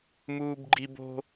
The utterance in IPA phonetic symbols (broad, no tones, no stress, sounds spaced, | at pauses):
m uː b ɡ͡ǃ i b o̤